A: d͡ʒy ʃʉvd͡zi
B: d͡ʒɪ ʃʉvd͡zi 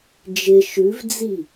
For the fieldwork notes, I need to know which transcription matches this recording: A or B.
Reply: B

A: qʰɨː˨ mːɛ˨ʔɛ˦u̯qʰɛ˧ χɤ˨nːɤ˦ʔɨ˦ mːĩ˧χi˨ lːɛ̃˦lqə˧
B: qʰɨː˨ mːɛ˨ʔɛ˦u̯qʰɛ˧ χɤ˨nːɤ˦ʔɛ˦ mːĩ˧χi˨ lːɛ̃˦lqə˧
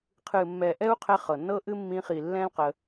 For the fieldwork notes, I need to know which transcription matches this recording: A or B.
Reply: A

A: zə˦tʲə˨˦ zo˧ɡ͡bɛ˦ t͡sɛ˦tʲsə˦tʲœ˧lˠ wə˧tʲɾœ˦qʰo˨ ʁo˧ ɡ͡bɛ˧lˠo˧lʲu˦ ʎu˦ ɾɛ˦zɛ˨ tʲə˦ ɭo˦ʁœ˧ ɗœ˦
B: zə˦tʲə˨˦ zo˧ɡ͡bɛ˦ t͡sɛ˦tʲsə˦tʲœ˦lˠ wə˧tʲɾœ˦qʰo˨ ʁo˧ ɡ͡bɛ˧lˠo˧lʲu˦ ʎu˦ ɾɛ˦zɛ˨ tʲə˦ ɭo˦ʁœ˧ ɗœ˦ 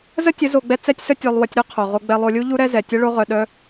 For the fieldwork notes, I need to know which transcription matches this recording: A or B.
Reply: A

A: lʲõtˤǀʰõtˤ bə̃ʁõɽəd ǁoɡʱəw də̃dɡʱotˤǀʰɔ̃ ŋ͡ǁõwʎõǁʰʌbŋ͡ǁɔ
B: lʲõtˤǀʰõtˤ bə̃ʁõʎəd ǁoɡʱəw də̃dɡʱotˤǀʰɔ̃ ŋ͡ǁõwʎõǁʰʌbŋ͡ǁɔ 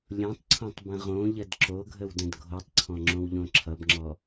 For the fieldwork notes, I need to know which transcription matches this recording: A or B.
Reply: B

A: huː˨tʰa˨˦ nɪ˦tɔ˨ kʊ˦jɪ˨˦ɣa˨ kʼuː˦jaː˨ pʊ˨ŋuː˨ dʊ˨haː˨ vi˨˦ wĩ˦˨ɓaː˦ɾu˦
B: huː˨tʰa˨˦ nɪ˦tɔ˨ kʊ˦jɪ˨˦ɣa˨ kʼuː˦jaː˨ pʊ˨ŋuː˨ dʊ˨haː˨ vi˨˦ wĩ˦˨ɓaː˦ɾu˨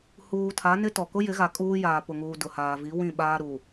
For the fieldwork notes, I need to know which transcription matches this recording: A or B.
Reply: B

